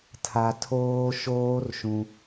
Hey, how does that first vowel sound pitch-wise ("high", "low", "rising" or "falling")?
high